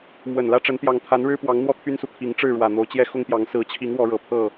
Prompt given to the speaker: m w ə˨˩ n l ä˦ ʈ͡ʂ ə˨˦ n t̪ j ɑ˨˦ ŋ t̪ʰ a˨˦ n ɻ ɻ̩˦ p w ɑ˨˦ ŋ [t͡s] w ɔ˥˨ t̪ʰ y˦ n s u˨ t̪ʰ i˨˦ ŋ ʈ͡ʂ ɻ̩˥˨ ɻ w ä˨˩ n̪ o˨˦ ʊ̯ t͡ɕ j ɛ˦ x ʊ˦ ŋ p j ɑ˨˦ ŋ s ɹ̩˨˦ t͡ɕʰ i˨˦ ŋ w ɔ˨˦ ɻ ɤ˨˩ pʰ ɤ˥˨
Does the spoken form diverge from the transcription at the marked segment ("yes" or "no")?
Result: yes